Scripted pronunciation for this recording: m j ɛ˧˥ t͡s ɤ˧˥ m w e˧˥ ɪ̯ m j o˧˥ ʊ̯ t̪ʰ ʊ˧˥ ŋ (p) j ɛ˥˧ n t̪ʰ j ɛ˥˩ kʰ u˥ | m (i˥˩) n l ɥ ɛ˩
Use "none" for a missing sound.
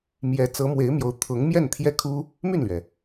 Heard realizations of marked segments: m, y˥˩

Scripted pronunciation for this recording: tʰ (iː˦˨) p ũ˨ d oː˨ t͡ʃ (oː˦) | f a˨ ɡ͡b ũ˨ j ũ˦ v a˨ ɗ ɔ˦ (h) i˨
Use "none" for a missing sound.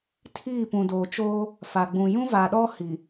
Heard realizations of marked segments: iː˦˨, oː˦, h

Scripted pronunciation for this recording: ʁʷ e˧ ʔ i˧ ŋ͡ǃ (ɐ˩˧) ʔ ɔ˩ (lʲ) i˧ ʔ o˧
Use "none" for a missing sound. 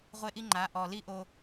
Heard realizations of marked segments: a˩˧, l

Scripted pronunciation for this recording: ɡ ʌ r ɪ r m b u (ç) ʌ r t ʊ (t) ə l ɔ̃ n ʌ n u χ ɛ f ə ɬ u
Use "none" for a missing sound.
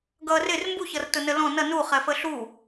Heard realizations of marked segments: ç, n

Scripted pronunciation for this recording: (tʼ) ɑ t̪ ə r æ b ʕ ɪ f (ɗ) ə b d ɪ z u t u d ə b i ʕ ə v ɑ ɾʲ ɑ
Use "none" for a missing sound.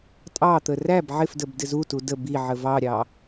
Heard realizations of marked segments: tʼ, d

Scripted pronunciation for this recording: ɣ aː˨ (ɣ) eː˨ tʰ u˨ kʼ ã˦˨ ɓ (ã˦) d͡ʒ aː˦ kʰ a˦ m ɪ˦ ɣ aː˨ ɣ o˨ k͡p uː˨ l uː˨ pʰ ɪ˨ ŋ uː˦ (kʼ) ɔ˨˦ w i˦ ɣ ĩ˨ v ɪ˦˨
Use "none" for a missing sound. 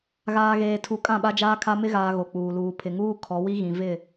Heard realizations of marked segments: ɣ, a˦, kʰ

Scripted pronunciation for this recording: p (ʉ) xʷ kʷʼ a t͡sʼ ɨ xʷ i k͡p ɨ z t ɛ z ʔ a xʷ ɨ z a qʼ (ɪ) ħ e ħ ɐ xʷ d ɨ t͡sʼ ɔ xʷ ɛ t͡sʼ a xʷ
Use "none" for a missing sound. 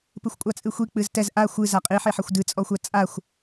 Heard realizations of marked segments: ɨ, i

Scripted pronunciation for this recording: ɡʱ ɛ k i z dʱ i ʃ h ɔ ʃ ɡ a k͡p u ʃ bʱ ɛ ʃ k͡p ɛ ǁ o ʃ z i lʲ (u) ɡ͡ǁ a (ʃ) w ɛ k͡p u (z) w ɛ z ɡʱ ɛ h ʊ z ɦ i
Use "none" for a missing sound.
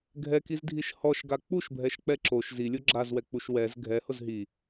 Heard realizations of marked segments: o, z, ʃ

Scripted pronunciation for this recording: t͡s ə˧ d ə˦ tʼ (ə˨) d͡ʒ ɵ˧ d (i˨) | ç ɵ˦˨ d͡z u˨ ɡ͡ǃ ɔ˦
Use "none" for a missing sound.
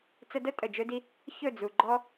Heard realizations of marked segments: ə˨, i˧

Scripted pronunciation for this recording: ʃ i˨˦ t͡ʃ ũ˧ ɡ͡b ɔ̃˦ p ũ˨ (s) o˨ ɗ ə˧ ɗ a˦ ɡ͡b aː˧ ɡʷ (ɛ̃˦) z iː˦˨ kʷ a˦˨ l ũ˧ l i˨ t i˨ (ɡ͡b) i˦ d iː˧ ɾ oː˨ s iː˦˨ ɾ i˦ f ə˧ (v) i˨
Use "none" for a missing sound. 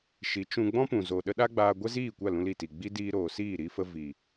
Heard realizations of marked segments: z, ɛ˦, ɡ͡b, v

